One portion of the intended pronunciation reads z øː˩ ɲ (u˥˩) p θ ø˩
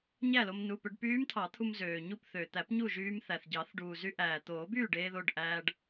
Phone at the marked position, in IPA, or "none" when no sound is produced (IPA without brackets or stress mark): u˥˩